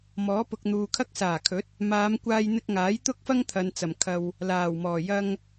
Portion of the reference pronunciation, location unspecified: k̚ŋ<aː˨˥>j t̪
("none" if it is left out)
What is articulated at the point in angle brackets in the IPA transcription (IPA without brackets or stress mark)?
aː˨˥